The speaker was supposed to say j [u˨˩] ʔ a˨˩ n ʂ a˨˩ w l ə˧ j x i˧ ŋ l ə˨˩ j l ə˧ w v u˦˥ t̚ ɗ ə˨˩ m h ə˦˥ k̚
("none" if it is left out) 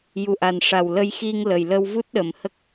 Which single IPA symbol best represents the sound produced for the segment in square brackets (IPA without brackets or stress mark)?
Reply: u˨˩